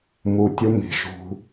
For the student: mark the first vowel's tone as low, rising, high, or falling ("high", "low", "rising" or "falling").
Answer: low